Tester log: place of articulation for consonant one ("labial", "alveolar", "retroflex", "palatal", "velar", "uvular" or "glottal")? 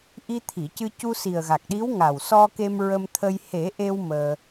glottal